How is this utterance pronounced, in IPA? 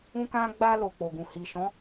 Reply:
ũ˦ k ã˦ ɡ͡b a˧ l o˨ k͡p o˨ ɡ ũ˨ h i˨ ʃ ɔ̃˨˦

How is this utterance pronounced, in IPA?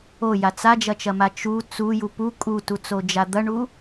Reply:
o j a t͡s a d͡ʒ ɐ t͡ʃ ɐ m a t͡ʃ u t͡s u j u p u kʼ u t u t͡s o d͡ʒ a d̪ ɐ ɳ u

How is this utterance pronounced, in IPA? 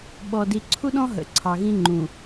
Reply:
ɓ ɔ˨ d i˨ ǀʰ u˦ ɗ ɔ̃˦ ɦ ə̰˨ ǀʰ ɑ˨ ɣ ĩ˦ ŋ͡ǃ ũ˨

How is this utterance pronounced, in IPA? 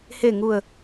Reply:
h e˨˩ ŋ u˨˩ ə̯

